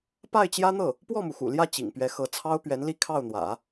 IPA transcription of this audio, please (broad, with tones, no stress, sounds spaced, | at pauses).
p a˥˩ ɪ̯ t͡ɕ j ä˥ n̪ ɤ˥˩ | p w ɔ˥˩ m u˩ x ṵ˨˩ l j ä˥˩ t͡ɕ ḭ˨˩ ŋ p ɥ ɛ˧˥ x ɤ˧˥ t͡sʰ ɑ˥ ʊ̯ p ɥ ɛ˧˥ n l i˥˧ kʰ ɑ˥˩ ʊ̯ n̪ w ä̰˨˩˦